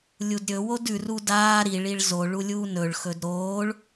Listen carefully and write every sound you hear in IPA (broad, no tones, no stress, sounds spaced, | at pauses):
lʲ u d ɾʲ ɵ w o d ʉ r u d aː ɾ i ɭ i ɭ z o ɭ u lʲ uː n ɵ ɭ x ɵ d ɾ oː ɭ